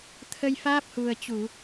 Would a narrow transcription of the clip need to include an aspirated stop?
yes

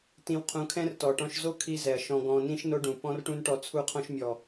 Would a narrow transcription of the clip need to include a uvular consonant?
yes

